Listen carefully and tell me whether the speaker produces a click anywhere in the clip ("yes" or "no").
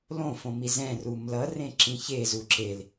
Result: yes